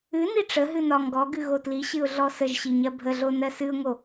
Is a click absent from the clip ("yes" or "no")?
yes